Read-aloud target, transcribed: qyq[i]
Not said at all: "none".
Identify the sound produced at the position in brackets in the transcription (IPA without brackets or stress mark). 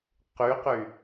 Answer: y